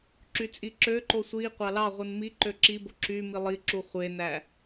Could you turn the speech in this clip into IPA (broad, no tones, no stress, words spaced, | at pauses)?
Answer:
ǁyt͡sʼiǁøǃo sʷi qʷɑlɑʁʷɯn mi ǃøǁibo ǁy milˠiǁu χʷenæ